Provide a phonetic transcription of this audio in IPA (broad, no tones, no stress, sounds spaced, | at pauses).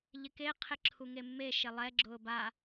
ʎ ɪ k e qʰ ɪ ǁʰ u ŋ e mː e ʃ e lˠ ɛ ɡ͡ǁ ʊː b a